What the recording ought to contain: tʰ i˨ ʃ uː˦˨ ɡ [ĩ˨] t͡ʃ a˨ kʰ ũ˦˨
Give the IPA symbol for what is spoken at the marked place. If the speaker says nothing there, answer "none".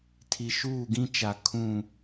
ĩ˦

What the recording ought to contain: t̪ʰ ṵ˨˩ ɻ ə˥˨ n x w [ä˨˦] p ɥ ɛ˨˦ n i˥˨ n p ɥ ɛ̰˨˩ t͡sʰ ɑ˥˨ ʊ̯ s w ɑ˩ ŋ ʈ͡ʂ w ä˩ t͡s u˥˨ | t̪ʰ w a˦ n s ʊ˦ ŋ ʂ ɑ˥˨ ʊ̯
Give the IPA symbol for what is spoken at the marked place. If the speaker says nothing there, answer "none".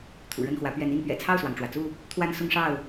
ä˨˦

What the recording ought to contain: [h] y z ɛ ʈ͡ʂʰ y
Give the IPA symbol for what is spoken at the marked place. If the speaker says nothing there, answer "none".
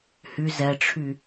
h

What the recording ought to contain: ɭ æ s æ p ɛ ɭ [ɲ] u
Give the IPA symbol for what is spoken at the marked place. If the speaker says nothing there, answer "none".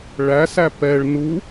n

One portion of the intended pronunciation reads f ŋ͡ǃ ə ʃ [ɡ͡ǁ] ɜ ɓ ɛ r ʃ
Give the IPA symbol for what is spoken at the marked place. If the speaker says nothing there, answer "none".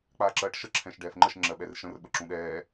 ŋ͡ǁ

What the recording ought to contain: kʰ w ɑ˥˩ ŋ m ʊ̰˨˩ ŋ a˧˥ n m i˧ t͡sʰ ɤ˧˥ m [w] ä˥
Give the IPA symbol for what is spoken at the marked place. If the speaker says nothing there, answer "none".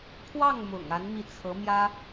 j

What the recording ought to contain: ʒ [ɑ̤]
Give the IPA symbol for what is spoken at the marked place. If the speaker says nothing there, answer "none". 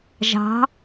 ɑ̤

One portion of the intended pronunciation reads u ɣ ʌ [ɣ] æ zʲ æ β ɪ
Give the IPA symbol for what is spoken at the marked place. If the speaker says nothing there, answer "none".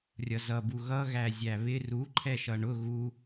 ɣ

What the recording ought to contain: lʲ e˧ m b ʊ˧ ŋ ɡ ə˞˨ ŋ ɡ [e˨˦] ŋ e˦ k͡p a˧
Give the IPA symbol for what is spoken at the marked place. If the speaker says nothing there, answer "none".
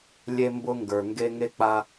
e˧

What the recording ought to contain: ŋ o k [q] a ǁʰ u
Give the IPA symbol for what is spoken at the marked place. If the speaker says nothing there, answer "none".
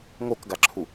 ɡ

